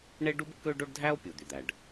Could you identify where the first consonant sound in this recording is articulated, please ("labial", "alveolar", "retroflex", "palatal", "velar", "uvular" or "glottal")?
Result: retroflex